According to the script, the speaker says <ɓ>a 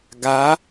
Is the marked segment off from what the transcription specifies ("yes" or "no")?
yes